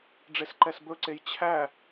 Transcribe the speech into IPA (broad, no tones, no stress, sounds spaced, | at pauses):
ɖ͡ʐ e s ǃ ɛ s b ɵ ǀ e j t͡ɕʰ æ